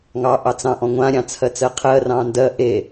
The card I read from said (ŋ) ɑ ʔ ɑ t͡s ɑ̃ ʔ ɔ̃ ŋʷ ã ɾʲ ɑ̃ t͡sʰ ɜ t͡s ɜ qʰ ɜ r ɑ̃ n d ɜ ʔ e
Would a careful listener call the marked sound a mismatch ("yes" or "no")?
no